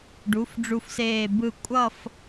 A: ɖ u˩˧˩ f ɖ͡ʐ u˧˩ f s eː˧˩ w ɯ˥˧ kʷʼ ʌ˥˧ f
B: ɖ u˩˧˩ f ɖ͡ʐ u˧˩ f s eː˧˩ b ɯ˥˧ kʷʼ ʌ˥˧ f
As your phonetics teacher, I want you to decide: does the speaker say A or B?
B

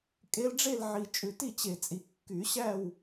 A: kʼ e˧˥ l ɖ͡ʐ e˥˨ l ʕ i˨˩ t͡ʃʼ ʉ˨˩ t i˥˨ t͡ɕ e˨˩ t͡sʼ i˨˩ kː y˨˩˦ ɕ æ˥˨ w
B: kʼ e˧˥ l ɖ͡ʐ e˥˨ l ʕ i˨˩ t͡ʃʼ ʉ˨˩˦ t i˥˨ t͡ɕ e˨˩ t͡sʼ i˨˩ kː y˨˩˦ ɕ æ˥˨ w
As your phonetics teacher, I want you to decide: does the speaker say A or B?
A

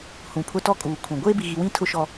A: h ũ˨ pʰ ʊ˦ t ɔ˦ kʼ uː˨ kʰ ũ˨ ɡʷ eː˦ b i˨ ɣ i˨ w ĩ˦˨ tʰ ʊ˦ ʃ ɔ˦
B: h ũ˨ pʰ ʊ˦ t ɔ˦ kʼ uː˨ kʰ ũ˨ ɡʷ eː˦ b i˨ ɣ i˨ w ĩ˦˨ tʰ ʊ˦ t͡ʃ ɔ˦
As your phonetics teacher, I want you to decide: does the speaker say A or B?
A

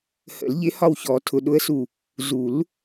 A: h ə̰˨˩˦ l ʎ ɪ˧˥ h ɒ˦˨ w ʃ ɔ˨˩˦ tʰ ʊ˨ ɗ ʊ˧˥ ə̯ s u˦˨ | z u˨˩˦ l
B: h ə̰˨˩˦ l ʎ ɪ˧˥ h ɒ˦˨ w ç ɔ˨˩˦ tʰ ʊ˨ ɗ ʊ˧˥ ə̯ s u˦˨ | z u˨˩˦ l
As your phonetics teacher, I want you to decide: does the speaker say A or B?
B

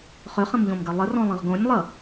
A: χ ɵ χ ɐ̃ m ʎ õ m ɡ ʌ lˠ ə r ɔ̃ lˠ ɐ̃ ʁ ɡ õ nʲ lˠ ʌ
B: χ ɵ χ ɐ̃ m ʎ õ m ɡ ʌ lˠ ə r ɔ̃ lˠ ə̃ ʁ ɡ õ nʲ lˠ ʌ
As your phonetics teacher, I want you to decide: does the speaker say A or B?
B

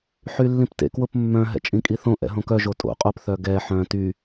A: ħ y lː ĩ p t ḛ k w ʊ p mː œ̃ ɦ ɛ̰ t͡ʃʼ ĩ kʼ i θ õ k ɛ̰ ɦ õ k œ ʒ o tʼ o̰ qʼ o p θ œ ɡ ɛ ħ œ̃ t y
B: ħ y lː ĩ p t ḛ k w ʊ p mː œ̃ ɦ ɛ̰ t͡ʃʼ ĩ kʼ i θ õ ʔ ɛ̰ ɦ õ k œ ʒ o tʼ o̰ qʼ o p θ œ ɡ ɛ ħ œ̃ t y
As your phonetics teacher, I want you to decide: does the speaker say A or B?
B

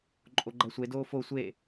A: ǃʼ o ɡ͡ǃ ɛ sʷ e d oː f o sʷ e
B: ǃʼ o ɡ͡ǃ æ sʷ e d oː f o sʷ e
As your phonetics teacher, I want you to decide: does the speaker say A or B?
B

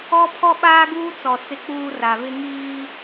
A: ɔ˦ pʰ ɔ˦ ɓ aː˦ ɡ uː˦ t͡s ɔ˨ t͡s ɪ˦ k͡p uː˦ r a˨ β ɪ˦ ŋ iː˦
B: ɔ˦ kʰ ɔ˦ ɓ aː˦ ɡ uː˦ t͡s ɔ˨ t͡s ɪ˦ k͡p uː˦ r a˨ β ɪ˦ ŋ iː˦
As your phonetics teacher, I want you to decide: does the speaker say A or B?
A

